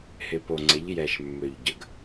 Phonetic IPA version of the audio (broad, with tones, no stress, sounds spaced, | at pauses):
h ɪ˩ p o˩ ŋ͡ǀ ɪ˩˧ ʎ j ɛ˩ ʃ mː ø˩ ʎ ɟ ə˩ ɡ